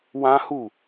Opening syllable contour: high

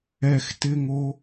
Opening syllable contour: high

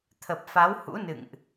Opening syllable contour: low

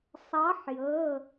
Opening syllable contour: rising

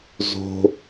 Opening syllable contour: high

